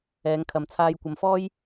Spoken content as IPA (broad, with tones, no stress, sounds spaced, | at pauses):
ɛː˨˧ ŋ kʰ ɐ˨ m t͡sʰ aː˧ j kʷ ɐ˨˧ m f ɔː˥ j